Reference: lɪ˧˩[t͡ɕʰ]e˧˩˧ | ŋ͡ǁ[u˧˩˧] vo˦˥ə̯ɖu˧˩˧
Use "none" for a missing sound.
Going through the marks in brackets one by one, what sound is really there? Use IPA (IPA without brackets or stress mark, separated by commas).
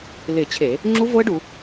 t͡ɕʰ, u˦˥